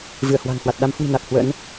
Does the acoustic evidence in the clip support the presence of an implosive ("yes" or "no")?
yes